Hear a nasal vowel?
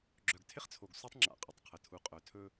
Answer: no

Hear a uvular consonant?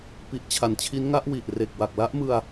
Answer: no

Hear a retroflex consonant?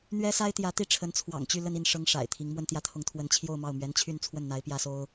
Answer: yes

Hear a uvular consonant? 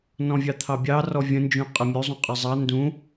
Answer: yes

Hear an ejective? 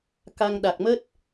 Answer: no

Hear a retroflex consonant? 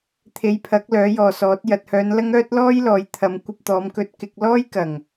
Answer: no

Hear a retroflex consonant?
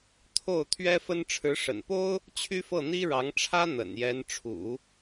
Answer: yes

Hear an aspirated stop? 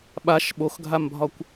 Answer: no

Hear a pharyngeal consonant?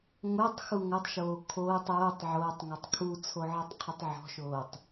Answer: yes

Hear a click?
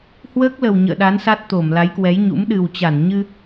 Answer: no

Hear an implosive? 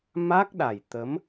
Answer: yes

